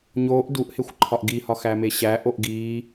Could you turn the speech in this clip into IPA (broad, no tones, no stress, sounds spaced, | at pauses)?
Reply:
ɲ oː ʔ d u ʔ h e xʷ ǃʰ ɒ ʔ ɡ i h ɒ x æ m e ɕ æ ʔ o ʔ ɡ iː